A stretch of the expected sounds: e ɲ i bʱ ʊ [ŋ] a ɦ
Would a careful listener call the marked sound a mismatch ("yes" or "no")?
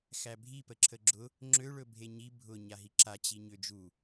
yes